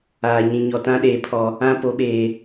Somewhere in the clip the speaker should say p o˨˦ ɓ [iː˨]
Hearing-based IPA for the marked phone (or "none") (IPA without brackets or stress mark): eː˨